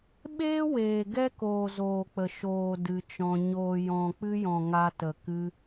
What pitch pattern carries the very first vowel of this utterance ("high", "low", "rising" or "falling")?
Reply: high